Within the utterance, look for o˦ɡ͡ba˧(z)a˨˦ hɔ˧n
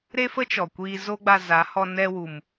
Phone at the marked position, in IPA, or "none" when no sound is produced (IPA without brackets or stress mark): z